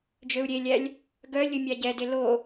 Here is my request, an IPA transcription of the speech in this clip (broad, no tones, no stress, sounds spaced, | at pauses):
d͡ʒ ø u̯ ɾʲ e lʲ æ lʲ | ɡ œ lʲ ɵ mʲ ɑ ɟ ɛ d e l o